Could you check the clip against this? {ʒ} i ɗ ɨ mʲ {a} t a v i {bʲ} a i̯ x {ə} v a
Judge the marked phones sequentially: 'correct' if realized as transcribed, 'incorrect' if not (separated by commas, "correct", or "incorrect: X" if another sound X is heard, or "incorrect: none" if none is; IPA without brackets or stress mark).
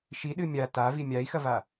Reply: incorrect: ʃ, correct, incorrect: mʲ, incorrect: ɐ